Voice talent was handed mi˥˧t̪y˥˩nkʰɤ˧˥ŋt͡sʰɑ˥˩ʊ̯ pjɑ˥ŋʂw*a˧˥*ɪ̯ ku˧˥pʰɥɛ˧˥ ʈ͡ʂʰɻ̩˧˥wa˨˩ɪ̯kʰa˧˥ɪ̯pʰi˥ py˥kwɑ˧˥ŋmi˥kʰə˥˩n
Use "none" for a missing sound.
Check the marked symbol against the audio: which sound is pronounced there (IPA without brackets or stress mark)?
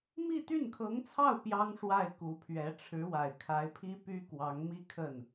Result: a˥˩